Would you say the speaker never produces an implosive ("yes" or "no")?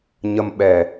no